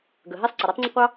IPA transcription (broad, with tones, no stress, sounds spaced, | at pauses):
ɡ ə˩ ɦ ɛ˥ sˤ ǀ ə˩ ɾ ɑ˥ tˤ ŋ͡ǀ ɐ˥ qʷ ɑ˥